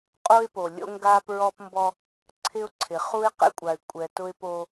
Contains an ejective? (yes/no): yes